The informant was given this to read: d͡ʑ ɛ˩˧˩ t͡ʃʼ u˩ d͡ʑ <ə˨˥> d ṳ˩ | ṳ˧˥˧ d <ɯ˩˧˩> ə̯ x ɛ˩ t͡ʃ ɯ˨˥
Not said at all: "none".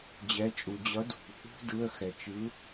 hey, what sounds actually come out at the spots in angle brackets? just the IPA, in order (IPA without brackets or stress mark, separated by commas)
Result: ʌ˨˥, ɯ˩˧˩